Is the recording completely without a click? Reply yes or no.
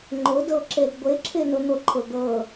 no